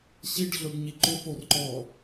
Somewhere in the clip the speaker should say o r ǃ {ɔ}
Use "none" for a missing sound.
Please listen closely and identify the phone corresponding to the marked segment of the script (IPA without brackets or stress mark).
ɔ